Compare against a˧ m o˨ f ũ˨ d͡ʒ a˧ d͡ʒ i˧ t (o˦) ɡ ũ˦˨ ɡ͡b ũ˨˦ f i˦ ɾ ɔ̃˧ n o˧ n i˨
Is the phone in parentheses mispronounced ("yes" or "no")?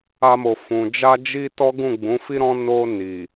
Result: yes